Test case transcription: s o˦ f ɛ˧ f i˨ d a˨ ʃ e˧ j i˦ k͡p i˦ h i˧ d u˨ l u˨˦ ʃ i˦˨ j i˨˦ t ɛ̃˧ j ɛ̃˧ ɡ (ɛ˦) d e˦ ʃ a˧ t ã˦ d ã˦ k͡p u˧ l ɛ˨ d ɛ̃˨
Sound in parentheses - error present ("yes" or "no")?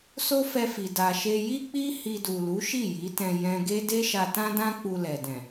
yes